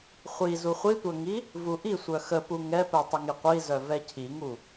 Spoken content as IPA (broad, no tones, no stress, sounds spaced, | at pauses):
χʷ i z u χʷ i tʷ œ ŋ i | v u ʔ i sʷ œ x ə p u ŋ ɛ p ɛ tˤ ə ŋ i qʷ i z œ v ɛ cʰ i ŋ u